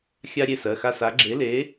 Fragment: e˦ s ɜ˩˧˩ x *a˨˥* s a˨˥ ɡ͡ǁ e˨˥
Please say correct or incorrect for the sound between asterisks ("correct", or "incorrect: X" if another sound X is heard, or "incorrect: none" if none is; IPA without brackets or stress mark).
incorrect: a˦